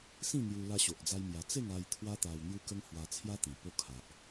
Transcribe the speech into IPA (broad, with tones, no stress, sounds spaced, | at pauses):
s ĩ˥˧ n̪ j u˧ l a˧ ɕ o˨ ʔ d͡z a˧ j m j a˧ t͡s e˥˧ ŋ a˧ j t̪ʰ w a˦ t̪ a˧ w n̪ j u˦ k ə˦ ŋ h w a˧ t͡sʰ j a˦ t̪ ĩ˨˩ p o˧ kʰ a˨ ʔ